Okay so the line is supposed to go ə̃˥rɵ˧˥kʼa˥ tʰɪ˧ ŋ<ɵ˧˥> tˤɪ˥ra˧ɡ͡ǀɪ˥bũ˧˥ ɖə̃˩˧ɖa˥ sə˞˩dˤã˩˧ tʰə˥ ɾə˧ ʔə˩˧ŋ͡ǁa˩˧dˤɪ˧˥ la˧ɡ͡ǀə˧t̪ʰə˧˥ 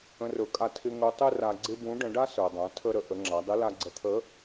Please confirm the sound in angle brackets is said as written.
yes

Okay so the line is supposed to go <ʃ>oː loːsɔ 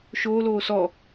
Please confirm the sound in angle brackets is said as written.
yes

